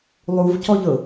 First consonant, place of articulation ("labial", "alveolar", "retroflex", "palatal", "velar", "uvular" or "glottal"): alveolar